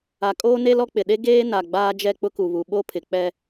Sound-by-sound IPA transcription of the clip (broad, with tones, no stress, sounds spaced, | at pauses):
a˨ kʼ oː˦ n e˦ l ɔ˦ k͡p ɪ˨ ɗ e˦ ɡ eː˦ n a˨ ɡ͡b aː˦ d͡ʒ ɛ˦ k͡p ʊ˦ k u˨ β u˨ ɓ o˦ pʰ ɪ˨ k͡p ɛ˦